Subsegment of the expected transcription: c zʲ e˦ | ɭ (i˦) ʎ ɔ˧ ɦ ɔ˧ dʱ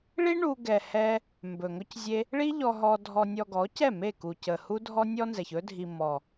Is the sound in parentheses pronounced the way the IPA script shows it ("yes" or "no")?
yes